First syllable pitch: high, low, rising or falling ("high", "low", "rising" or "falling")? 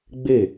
falling